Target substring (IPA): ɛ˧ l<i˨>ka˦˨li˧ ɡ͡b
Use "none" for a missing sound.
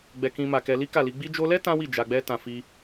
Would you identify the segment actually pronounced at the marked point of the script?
i˦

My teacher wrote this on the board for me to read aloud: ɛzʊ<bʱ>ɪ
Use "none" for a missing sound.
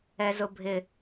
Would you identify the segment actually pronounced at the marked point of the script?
bʱ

